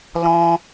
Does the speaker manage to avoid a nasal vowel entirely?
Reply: no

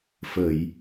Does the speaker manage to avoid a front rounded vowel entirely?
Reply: yes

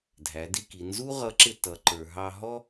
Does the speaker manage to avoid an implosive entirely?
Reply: yes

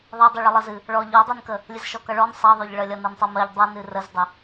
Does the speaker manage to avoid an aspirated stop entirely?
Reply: yes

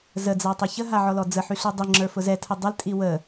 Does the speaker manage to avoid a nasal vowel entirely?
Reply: yes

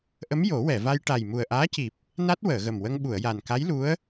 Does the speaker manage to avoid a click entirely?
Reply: yes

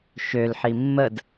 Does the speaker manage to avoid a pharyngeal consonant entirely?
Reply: no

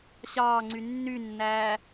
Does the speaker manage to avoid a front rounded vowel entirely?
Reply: no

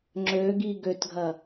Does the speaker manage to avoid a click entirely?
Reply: no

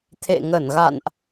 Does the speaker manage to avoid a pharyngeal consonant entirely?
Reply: yes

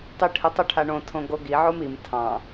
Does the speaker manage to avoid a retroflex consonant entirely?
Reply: no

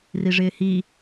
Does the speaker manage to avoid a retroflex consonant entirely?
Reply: no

